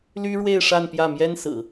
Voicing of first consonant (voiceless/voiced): voiced